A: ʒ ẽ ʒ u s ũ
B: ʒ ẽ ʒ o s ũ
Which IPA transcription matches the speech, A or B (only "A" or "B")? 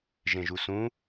A